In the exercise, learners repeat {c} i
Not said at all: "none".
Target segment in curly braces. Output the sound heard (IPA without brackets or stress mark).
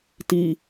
t